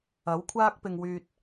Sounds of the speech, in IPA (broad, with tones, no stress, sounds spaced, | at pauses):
ɐ˨˥ w kʷʰ aː˥ k̚ p ɪ˨ ŋ w yː˨ t̚